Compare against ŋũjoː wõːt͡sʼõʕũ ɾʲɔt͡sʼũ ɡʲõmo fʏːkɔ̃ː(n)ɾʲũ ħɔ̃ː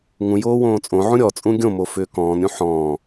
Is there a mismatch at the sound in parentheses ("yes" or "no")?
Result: no